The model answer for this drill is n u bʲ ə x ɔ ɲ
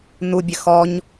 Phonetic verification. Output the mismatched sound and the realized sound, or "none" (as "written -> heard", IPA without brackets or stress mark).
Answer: none